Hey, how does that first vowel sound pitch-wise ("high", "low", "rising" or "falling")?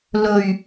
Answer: low